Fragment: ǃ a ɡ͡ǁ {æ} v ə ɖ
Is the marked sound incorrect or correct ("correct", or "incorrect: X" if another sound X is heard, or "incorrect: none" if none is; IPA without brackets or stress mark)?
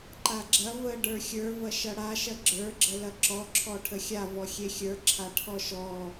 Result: incorrect: ɐ